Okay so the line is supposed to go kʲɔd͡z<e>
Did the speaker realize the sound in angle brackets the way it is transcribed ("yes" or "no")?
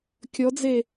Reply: yes